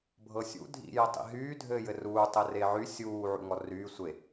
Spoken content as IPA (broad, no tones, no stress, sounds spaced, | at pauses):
bʱ ɤ sʲ ṵ dʱ ḭ j ə tˤ ḭ ɦ yː dʱ ɘː j ɘ r uː tˤ ɘ r e ʕ y sʲ uː ʕ ṵ ŋ ɔ r yː sʷ e